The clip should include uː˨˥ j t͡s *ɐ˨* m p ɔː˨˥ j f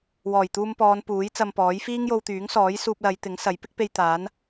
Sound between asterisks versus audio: incorrect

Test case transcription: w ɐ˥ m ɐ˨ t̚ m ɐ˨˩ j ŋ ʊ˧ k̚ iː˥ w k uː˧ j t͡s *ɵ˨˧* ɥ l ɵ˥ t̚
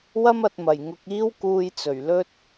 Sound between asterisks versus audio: incorrect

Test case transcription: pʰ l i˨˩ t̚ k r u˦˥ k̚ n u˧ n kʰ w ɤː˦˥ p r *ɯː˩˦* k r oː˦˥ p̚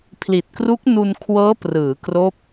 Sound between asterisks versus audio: correct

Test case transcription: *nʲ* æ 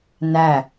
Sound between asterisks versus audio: incorrect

